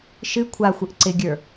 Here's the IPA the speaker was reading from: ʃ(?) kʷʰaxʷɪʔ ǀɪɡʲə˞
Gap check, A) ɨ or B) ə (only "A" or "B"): A